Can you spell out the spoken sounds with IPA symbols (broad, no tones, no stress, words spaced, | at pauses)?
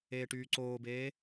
eːʈyːǀoːbeː